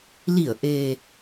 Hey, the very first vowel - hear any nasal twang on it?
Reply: no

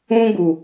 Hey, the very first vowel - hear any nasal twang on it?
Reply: yes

